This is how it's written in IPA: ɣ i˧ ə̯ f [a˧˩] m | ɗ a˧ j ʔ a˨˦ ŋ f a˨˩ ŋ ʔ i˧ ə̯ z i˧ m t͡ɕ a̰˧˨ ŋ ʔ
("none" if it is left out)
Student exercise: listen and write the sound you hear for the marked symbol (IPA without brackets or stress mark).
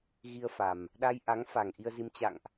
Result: a˨˩